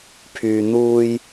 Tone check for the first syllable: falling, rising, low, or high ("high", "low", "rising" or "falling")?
low